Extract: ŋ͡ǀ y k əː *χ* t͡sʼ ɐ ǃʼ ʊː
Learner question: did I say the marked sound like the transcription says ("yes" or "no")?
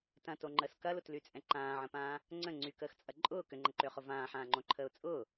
no